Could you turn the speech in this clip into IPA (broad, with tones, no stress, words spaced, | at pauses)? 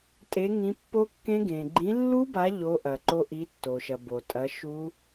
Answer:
tʼe˨˦ ŋĩ˨˦pːo˦˥kːẽ˦˥ ɡẽ˩ɡ͡ǃĩ˨˦ lːu˦˥ba˨˦ ʎo˨˦ ʔɐ˩ ǃo˦˥ ʔi˨˦tːo˩ʃɐ˩ bo˩tʼɐ˨˦ ʃu˦˥